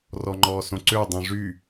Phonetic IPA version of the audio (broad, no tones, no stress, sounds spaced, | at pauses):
r ɔ ŋ͡ǃ ɔː s õ ǀ ø dˤ œ̃ ʐ y